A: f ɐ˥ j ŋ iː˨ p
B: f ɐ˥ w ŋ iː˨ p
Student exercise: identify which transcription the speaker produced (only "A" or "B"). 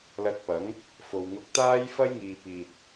A